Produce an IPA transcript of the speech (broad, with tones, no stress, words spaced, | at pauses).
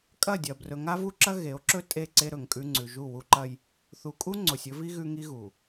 kʼɐ˦˨dʲɐ˨ brɵ˨ŋa˦vu˦ǁɐ˦ ɣe˨˦o̯ǁɵ˦ tʼe˦˨ǀe˦ɾɵ˨ŋkʼʉ˦ ŋ͡ǀʉ˨ʒu˦˨ wu˦ǃɐ˦j | θu˨kʼu˦ ŋ͡ǀo˨sʲɵ˦vi˦ ɣʉ˦ŋi˦ɣu˨